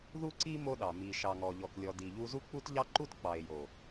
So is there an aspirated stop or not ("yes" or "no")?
no